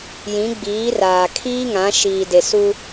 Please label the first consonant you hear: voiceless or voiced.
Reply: voiced